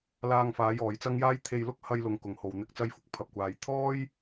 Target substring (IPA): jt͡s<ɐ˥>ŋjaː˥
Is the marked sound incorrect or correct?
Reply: correct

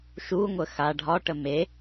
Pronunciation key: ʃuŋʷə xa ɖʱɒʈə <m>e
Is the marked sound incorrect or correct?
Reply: correct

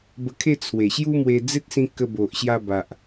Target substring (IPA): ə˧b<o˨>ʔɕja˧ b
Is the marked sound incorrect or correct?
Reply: correct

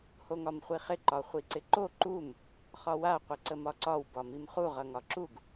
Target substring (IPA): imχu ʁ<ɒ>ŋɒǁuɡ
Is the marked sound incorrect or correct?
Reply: incorrect: ʌ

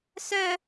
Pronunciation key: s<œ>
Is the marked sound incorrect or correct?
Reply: correct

